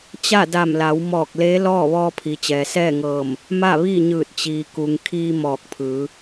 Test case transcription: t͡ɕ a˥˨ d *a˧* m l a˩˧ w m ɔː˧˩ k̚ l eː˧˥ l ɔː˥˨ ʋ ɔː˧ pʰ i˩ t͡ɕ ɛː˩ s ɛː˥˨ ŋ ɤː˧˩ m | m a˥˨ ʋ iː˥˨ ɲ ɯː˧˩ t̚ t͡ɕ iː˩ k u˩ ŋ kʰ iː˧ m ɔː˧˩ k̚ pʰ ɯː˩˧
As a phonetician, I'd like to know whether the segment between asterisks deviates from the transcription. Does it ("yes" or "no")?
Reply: yes